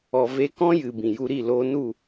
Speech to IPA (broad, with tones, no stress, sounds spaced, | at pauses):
ɔ˨ v e˧ k ɔ̃˦ j ɨ˨ b ĩ˨ j u˧ ɾ i˦˨ l oː˧ n u˦˨